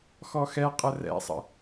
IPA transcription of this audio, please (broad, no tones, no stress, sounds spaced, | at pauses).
x ɔ x ɛ qʼ ə r ɛ̰ sˤ ə̰